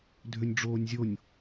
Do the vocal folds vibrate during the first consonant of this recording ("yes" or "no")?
yes